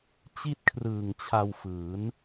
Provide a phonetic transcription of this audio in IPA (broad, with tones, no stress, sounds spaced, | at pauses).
t͡ɕ i˥˩ t̚ kʰ r ɯː˨˩ ŋ t͡ɕʰ a˧ w f ɯː˩˦ n